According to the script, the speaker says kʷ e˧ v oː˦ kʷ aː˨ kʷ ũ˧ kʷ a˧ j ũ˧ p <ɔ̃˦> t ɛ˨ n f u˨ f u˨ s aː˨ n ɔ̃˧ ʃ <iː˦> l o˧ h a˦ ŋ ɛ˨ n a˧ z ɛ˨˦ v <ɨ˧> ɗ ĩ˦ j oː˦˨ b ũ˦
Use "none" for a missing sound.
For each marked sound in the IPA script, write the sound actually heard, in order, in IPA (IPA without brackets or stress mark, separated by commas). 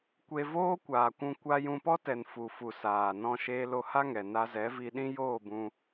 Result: ɔ˦, eː˦, i˧